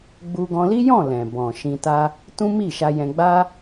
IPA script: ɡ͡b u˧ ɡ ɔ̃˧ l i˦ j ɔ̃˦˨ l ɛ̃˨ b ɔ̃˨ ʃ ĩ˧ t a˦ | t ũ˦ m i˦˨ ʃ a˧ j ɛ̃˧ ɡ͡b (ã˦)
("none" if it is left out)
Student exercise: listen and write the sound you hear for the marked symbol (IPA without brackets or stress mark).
a˦